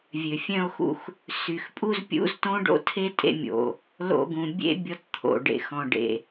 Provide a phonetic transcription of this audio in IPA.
vʲ ø˩ fʲ œ̃˧ o̯ x ṵ˧ x | s y˩ x pʼ u˧ z pʲ ṵ˧ z t õ˥ ɖ o̰˥ tʰ e˥ tʼ ḛ˥ mʲ o̰˩ | l o̰˧ ɡ ũ˩ bʲ ḛ˥ bʲ ɔ˧ t t̪ʰ o̰˩ ɖ ḛ˩ x ɔ̃˩ ɖ ḛ˩

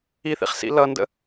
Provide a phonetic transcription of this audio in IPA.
i θ ḭ χ s ḭ l ʌ n d ə̰

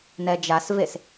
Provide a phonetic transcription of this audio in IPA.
n ɛ d͡ʒ a s v e s

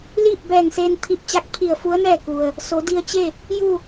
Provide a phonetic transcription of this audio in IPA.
l iː˥˨ p̚ b ɛː˧˩ ŋ s eː˧ n t̪ʰ i˧˩ p̚ t͡ɕ a˧˥ k̚ pʰ i˧˩ ə̯ f u˧˥ ə̯ n ɛː˥˨ k u˩ ə̯ | s o˩˧ d i˧ ə̯ t͡ɕ e˥˨ | j u˥˨

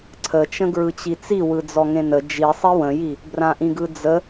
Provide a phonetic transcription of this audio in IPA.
ǀʰ ə t͡ʃ ə̃ ɡ ɹ ɯ t͡ɕ i t͡s i w ɯ d͡z ɔ ŋ ẽ n ə d͡ʒ i sˤ i w ə̃ j i | b r ã ʔ ĩ ɡ ɯ d͡z ə

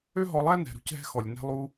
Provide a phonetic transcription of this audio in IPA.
ø˥ ɦ ɔ˧ lˠ æ˥ n ɛ̤˩ ɾ ṳ˧ c ɦ ɛ̤˧ x ɔ˩ lʲ n ɛ̤˧ lˠ u˧

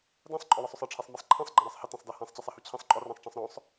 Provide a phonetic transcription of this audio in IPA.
d æ̃ sˤ ǃʼ ɔ w ɪ sˤ ʊ sˤ ʌ ʈ͡ʂʰ i sˤ m i sˤ ǃʰ ɛ̃ sˤ ɡ͡ǃ ɛ̃ ɾ æ sˤ h ɪ t ɛ̃ sˤ d ɜ h æ̃ sˤ t͡ɕ i sˤ ɛ h u t͡ɕʰ ĩ sˤ ǃʼ ɔ r æ̃ sˤ ʈ͡ʂ ɛ̃ sˤ ɾ ɔ̃ sˤ

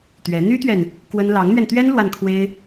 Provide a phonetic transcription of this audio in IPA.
t̪ ɥ ɛ˧˥ n̪ y˥ t̪ ɥ ɛ˨ n | k w ə˥ n l ɑ˧˥ ŋ n̪ ɥ ɛ˧ n t̪ ɥ ɛ˥ n l w a˥˩ n kʰ w e˥ ɪ̯

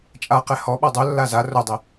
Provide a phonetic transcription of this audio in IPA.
t͡ʃʼ a q ɛ h ɔ ɓ ɔ dˤ o lː a z a r o dˤ e

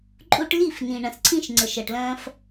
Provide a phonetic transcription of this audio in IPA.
ǃʼ u˧ ʈ l i˦˨ f n ĩ˨ ɳ ɐ̃˨ s ǀʰ ĩ˦ ʃ ŋ͡ǀ ə˨ ʃ ɐ˨ ʈ l ɐ̃ː˧ f

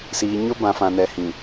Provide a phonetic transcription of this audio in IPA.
s iː˨ ɲ ʊ˦ b ã˨ f ã˨ n ɛ˨ h ĩ˨

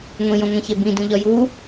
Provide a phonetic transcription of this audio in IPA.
ŋʷ ĩ j õ ŋʷ ẽ ç e b ĩ d ũ ʎ ɒ j u

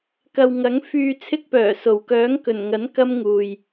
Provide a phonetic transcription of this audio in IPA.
k ɐ˨ w ŋ ɐ˨˥ ŋ f yː˧ t͡sʰ ɪ˥ k̚ p œː˨˩ s o˨˩ w k œː˨˥ ŋ k ɵ˨˩ n ŋ ɐ˨˥ n k ɐ˥ m ŋ uː˨ j

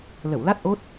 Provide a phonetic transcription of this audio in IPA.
l ə˧˩ w l a˦˥ t̚ ʔ o˦˥ t̚

